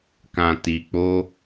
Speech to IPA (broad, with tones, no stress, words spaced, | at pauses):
kã˧ti˧k͡po˦